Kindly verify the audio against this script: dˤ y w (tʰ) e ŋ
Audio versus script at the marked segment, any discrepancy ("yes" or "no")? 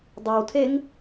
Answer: no